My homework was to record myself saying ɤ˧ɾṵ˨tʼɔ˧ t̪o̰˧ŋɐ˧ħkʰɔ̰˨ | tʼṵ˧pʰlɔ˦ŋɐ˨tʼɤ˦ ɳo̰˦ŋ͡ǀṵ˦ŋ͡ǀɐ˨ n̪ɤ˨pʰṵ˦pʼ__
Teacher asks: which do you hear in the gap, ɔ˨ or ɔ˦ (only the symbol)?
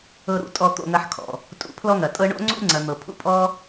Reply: ɔ˦